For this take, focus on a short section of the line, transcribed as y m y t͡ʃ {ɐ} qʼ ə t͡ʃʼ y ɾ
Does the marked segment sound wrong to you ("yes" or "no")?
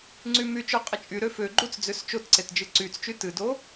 yes